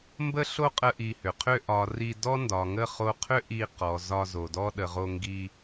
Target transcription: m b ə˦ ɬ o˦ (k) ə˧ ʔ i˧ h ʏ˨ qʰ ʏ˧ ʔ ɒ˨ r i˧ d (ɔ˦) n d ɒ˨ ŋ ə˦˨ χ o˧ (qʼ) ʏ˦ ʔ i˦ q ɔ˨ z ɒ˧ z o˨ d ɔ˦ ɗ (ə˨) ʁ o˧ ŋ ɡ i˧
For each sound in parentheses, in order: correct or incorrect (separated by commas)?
incorrect, correct, incorrect, correct